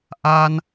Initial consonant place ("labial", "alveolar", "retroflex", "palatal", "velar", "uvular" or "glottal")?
glottal